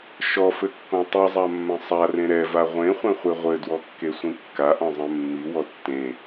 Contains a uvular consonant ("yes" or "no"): yes